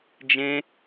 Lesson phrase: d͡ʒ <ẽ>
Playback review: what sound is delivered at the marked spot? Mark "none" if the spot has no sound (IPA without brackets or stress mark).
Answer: ẽ